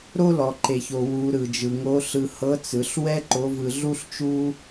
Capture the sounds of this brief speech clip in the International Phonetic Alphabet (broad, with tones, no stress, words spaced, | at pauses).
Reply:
ɾo˥lɔ˩ǃe˩ço˩ wu˩˧ ɾɯ˩d͡ʒɯ˩ ŋo˧˥ɬɯ˧ hɤ˧˥t͡sɯ˩˧ɬ wɛ˥ ǃo˧˥vɯ˧ ɮu˥ɬ t͡ʃu˥